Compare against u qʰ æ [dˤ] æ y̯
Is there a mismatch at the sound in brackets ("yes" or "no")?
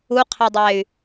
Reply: no